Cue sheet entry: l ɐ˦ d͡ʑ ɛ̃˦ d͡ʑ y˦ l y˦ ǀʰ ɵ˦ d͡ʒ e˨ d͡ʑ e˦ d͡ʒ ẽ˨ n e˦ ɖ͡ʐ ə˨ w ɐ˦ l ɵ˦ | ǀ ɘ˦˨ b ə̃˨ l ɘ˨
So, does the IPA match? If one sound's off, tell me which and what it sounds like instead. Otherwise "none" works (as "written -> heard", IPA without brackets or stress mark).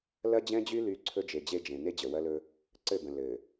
ɖ͡ʐ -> d͡ʑ